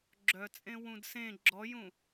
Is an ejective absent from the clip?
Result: no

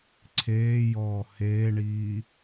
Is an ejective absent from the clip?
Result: yes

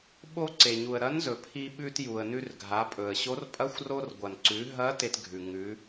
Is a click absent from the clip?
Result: no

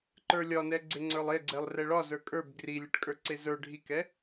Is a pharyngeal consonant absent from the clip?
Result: yes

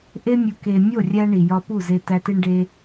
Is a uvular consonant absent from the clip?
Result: yes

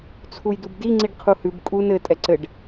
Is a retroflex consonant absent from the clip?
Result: no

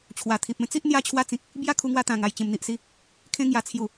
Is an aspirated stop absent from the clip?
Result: no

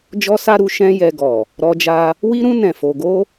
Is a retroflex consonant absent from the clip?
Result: yes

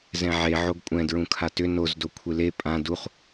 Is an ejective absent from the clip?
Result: no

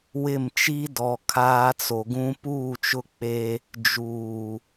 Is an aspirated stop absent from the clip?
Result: no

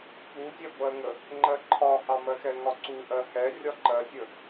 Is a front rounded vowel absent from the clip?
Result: yes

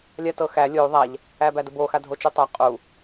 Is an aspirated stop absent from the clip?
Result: yes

